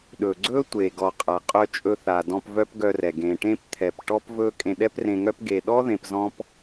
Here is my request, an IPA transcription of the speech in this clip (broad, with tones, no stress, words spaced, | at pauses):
ɗɵ˨ɡ͡ǀɵ˦ tʷe˨ɡɔ˨ qʼa˨qʼœ˧ t͡ʃʼɵ˧θa˨dɔ̃˧p vœ˦pɡœ˧rɛ˨ ɡẽ˨ʈẽ˦p t̪ʰɛ˨pʈɔ˦pvɵ˦ kʼẽ˧ɗɛ˦prẽ˧ŋœ˦p ɡe˨ɗɔ˦ ðẽ˧pzɔ̃˦p